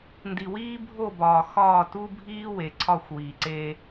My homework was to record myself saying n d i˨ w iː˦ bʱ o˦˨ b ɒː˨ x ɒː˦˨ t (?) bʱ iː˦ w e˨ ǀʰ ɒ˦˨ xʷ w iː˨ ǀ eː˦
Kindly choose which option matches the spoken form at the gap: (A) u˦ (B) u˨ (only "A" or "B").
A